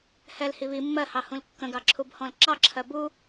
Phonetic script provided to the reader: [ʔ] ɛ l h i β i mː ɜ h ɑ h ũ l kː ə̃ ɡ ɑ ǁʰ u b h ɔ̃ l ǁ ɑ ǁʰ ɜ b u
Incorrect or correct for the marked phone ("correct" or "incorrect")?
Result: incorrect